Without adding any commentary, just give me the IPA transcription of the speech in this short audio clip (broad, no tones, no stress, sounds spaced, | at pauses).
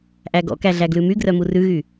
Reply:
ʔ æ ɡ ɔ̰ k æ ɮ æ ɡ l ʉ m y ɡ r œ m u r ʉ ɣ y